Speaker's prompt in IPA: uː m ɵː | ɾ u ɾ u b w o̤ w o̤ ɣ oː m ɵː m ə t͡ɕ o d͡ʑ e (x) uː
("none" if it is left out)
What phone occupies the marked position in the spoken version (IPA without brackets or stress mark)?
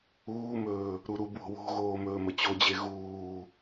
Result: ɣ